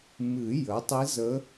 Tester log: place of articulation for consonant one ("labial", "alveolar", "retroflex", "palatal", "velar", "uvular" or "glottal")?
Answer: labial